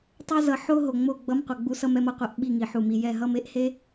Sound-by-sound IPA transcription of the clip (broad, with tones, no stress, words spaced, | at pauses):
tˤɛ˦zʌ˨ ħo˦ɦo˨ ŋ͡mo˦˨ ɡ͡bʌ˦mqʷʌ˨ɡ͡bu˦sʌ˦m ɛ˦mʌ˨qʷɛ˦ʔ ɓi˦˨ŋi˨ħu˨mi˨ jɛ˦˨ɦʌ˦me˦ʔ he˦